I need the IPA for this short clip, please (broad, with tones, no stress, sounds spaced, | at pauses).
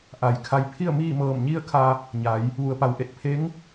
ʔ a˩ j kʰ a˧ j pʰ i˥˨ ə̯ m iː˥˨ m ɤː˧˩ m ɲ i˥˨ ə̯ kʰ a˧ | ɲ a˩˧ j | ʋ u˩˧ ə̯ p a˩ w ʔ e˧˩ t̚ pʰ e˧˥ ŋ